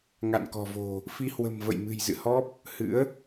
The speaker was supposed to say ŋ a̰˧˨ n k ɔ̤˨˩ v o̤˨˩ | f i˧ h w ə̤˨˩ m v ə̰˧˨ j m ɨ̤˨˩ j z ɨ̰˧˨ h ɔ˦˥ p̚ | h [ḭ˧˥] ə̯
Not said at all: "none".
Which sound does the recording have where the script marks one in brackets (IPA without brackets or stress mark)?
ɨ̰˧˥